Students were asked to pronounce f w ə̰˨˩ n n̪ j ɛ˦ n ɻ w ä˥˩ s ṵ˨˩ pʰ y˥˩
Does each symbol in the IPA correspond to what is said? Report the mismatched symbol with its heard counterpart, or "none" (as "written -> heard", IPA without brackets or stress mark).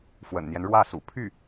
none